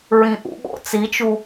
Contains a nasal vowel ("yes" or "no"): yes